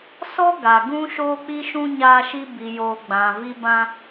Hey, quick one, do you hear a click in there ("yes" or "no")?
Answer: no